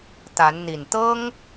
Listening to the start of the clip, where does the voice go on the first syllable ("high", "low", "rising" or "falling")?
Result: rising